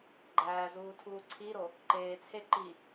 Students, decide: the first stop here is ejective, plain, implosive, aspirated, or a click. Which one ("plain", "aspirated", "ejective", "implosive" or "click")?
click